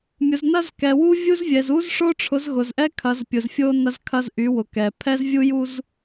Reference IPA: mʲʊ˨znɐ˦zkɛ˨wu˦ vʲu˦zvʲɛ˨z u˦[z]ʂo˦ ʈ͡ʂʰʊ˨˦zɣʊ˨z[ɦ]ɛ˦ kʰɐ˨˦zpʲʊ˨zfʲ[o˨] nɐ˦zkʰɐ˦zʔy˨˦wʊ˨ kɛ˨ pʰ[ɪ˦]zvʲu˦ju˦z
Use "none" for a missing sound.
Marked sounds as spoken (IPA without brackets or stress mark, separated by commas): z, ʔ, o˦, ɛ˦